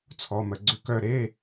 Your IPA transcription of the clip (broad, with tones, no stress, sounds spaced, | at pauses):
t͡sʰ ɔ˧˥˧ m ə˦˨ ɡ͡ǀ ʏ˦˨ k œ˦˨ ɾ e˧˥˧